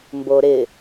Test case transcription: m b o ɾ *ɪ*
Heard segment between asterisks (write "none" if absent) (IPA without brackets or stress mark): ɪ